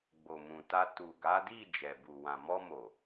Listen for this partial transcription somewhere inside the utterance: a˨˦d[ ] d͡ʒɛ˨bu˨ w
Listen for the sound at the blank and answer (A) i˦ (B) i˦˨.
B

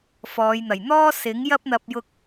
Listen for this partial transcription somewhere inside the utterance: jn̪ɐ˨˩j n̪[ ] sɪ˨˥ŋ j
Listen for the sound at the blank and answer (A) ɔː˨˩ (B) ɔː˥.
B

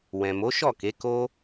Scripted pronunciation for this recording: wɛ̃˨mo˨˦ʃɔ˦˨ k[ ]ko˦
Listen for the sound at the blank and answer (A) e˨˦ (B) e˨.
A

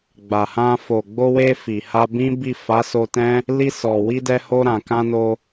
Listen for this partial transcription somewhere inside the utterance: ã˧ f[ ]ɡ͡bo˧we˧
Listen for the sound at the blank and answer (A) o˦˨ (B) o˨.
B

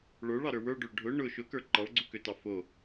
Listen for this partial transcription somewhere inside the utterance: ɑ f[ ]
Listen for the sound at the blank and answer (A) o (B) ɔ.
A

